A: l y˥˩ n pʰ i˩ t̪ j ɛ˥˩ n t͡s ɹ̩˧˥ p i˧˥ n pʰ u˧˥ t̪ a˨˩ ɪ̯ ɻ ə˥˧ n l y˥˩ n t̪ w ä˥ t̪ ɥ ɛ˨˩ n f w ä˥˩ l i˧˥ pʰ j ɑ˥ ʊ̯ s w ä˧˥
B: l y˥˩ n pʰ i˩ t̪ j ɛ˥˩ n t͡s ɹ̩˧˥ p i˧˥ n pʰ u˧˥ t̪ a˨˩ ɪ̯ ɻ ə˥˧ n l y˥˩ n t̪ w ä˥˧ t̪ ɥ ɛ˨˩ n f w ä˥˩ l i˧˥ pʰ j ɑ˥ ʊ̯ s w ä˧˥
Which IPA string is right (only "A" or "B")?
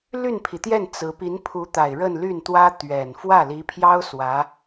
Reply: A